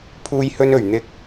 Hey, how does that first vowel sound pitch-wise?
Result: high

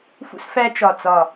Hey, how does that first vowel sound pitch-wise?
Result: high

